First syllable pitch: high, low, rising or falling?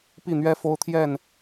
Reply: falling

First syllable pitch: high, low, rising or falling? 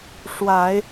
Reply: low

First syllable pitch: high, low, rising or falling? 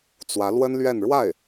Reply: rising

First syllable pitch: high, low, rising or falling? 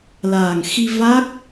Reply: low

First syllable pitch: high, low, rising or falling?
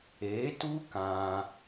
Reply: rising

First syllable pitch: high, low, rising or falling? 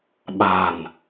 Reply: low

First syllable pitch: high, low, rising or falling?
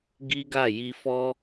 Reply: high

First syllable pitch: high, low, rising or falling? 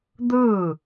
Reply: falling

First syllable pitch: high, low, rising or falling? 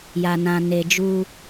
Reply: low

